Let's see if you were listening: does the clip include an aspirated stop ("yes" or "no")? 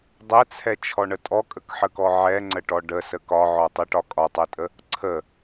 yes